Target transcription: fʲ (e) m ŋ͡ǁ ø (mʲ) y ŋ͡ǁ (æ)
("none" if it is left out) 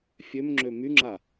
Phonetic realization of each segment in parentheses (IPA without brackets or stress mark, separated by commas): ø, m, a